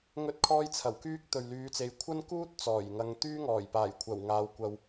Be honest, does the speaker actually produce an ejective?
no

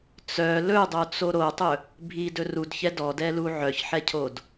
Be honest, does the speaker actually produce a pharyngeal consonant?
yes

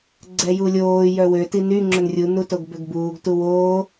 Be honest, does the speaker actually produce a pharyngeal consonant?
no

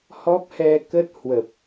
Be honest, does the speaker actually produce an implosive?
no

